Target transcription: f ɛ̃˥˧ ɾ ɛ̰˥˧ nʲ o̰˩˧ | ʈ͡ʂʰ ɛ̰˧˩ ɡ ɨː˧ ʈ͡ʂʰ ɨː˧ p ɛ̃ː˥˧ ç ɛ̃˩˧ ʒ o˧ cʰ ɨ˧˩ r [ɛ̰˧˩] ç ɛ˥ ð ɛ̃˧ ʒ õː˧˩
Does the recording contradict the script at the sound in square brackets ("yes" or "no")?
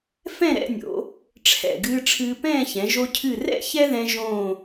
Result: yes